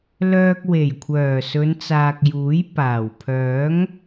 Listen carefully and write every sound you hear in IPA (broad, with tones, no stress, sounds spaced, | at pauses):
l œː˧ k̚ w e˨˩ j kʷʰ œː˨˩ s ɵ˨˧ n t͡s aː˨ k̚ j uː˨˥ j p aː˨˩ w pʰ œː˨˥ ŋ